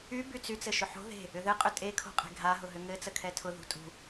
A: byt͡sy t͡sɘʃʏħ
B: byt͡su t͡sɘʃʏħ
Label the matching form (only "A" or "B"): A